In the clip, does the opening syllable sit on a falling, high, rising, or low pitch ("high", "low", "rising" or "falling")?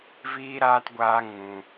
high